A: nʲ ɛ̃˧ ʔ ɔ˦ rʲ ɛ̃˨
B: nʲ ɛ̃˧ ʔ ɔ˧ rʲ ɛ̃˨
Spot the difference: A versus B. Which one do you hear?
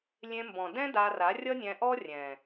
A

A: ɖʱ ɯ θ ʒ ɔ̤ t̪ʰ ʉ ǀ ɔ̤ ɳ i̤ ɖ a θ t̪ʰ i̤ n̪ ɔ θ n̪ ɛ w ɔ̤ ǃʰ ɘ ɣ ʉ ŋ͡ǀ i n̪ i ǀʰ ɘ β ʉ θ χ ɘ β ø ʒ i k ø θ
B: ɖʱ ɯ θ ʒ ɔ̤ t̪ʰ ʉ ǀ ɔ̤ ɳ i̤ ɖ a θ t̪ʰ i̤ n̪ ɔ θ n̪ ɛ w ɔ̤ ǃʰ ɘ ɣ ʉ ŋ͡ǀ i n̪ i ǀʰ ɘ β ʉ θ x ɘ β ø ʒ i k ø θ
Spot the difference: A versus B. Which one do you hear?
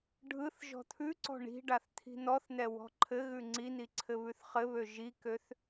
A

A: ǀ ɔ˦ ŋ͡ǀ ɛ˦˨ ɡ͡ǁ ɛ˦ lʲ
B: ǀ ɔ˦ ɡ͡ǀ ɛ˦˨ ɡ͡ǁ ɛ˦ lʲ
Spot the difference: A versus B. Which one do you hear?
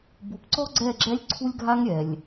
B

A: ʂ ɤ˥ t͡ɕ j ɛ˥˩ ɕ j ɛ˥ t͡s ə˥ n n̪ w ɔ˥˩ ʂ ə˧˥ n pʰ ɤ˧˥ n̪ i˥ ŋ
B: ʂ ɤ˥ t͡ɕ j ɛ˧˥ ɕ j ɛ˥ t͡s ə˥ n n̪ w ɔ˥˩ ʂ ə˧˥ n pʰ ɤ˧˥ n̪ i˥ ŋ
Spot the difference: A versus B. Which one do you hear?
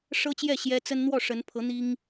A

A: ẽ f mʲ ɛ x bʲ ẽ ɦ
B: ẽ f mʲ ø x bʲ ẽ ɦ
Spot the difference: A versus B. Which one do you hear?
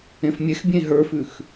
A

